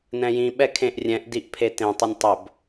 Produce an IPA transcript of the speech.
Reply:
n ɛ̃ j ĩ ɓ ɛ kʰ ẽ ʔ rʲ ɛ̃ ʔ d i ʔ pʰ e t ẽ tˤ ɵ nʲ tˤ ɵ b

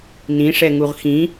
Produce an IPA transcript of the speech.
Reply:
n ĩ ʂ ɛ ŋ u ʁ x ĩ

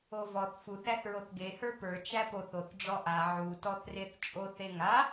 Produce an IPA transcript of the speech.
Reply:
o v ɔ θ f u θ æ θ ɹ o θ ɡ e h ə˞ p ə˞ t͡ʃ æ p o θ o θ ɖ͡ʐ ɔ ʔ a ʕ u t ɔ θ r e θ t͡ʃʼ o θ e ŋ a

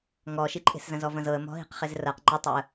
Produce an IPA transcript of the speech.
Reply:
ŋ ɔ ʃ i ǃʼ e̤ s z ɐ̃ z ɔ v ɐ̃ z ɤ ə̯ m ɔ̤ ɦ i̤ q χ e z r ɐ q ŋ͡ǃ ɪ tˤ e ə̯

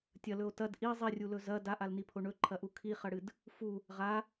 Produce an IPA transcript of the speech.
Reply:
tʲ ɐ l ɵ o̯ t ɐ d ʔ i zˤ i rʲ u l ɵ z ɐ d a ʔ a l n i pʰ o ɳ ɵ ǃʰ ɐ ʔ u kʰ i χ ɐ ɽ ɨ d | f u | ʁ a

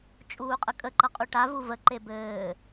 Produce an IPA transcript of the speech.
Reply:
t͡ʃʼ uː qʼ ə kʼ ə ǃ ʌ qʼ u ʈ a v u v ə ǃ e b ɘː

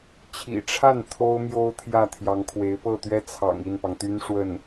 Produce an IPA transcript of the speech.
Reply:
t͡ɕʰ ḭ˨˩ ʈ͡ʂʰ a˥˩ n t̪ʰ o˥ ʊ̯ m j o˥ ʊ̯ t̪ʰ j ä˥˩ t̪ʰ j ɑ˧˥ ŋ kʰ w e˧˥ ɪ̯ p ɤ˥˩ t̪ ɥ ɛ˥ t͡sʰ ɑ̰˨˩ ŋ i˥˩ n p ɑ˩ ŋ t̪ y˥ n ʂ w ə˥˩ n

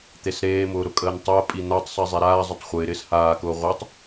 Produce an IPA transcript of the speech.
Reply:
t̪ e s ɾ eː m ʊː ɾ ʊ kʼ əː n tˤ əː pʼ i n̪ a tˤ sˤ i zˤ e ɾ aː zˤ ə tˤ χʷ ɪː ɾ ɪː s h aː k ʊː ʁʷ a tˤ

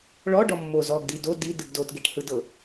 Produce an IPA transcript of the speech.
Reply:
ɭ ɔ ɖ ɔ mː o z ɔ ɡ d i d o d i d ɯ ɡ d o t ɡ e ʈ h ɯ d ɤ

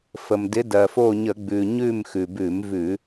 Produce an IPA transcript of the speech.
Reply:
f ə˩ m d ɪ˨˦ d ɜ˩ f o˦˨ ɲ ə˧˩˧ ɡ͡b ʉ˩ ɲ ʉ˦˨ m x ʉ˩ b ʉ˧˩˧ m v ʉ˧˩˧

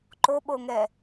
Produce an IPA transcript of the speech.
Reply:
ǃ o ɓ o ŋ ɛ

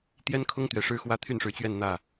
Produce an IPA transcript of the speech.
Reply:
t̪ j ɛ˥ n kʰ ʊ˥ ŋ t̪ ɥ ɛ˧˥ ʂ ɻ̩˥ x w ä˥ t̪ʰ y˥˩ n ʂ ɻ̩˧˥ t͡ɕ ɥ ɛ˥˧ n n̪ ä˥˩

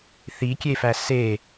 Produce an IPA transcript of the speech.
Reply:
θ i kʲ e f æ s e

